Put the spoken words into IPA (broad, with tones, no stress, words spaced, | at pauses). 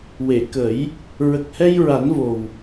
we˨˩˨kə˨˩˦j | ɹə˨˩k̚hɛ˧jɹa˨˩˦nvo˨˩w